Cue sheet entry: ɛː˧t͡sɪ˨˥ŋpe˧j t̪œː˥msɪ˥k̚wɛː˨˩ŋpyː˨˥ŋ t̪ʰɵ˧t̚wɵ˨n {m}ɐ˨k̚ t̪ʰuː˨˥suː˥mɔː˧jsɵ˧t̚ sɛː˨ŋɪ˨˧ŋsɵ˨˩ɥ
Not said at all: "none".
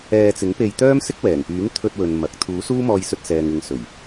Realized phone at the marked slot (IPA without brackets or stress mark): m